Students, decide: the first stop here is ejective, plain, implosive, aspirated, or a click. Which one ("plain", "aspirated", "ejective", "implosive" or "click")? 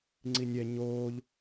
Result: click